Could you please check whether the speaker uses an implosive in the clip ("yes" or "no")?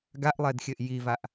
no